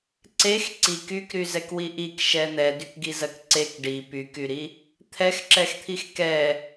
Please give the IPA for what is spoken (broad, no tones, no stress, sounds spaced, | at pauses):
ǀ e x ǀ i k y k ɾ y z ɛ k w i ʔ i k ʃ ɛ n̪ ɛ d y k ɡ i z ɜ k ǀ e k ɖ i p y k y ɾ i | t̪ʰ ɛ x ǁ ɛ x t̪ʰ i x k ɛ